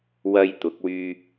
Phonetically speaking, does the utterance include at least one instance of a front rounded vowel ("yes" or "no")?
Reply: yes